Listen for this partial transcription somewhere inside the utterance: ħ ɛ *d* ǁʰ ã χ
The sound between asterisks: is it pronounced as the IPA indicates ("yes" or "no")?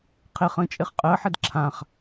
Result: yes